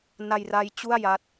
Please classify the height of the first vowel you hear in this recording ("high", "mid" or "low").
low